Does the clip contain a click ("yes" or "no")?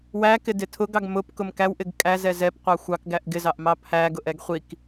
no